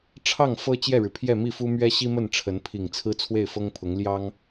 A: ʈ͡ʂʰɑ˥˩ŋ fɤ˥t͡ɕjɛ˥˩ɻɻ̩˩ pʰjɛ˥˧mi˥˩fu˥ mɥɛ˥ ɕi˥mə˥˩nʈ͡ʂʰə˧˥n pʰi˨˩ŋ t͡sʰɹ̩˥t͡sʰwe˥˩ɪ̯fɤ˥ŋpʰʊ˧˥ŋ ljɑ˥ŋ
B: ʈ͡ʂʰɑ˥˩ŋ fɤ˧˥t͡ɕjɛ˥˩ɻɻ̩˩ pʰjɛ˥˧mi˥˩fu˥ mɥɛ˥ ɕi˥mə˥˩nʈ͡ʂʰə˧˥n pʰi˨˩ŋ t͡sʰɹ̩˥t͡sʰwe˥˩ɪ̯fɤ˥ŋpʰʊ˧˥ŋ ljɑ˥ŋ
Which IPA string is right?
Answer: A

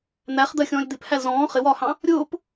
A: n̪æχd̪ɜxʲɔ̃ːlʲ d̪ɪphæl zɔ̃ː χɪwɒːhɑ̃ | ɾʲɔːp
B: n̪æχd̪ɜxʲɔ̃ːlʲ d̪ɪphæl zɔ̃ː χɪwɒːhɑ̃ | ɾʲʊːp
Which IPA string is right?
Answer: B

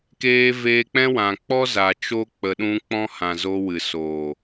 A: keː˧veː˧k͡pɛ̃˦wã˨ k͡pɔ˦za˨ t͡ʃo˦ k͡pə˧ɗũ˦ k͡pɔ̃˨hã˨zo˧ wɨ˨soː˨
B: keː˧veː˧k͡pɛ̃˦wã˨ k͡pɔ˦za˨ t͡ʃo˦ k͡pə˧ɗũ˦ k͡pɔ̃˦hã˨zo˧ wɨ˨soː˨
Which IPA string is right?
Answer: B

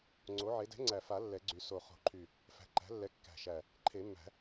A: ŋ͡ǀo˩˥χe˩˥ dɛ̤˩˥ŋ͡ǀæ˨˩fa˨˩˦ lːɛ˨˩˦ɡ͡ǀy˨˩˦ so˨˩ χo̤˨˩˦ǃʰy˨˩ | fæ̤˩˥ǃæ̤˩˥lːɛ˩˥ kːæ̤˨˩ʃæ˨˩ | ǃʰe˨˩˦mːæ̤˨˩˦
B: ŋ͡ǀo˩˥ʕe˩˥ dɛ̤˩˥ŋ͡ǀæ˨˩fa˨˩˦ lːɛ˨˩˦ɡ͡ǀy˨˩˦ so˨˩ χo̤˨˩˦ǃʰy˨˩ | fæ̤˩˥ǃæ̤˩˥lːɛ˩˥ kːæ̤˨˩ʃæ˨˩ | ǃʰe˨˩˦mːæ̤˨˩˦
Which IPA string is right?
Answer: B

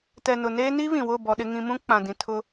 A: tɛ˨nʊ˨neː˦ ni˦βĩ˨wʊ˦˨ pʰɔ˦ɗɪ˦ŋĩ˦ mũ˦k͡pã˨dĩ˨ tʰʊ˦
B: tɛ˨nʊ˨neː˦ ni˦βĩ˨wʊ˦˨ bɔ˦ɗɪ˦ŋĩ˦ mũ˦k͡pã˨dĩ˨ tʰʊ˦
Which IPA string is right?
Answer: B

